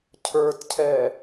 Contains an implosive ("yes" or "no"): no